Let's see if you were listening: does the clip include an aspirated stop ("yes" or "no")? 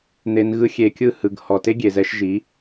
no